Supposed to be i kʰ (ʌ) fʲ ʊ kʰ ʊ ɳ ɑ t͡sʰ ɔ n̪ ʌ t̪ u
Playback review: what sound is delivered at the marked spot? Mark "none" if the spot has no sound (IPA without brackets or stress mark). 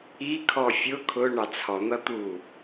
ɔ